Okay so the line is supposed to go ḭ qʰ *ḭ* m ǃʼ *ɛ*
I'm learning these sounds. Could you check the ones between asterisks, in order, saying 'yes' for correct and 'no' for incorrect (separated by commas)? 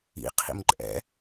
yes, no